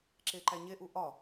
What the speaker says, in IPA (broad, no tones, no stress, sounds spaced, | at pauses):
ǁ e ǃ æ ɲ e ʔ u ʔ ɒ